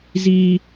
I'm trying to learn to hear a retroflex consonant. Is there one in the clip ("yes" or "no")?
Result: no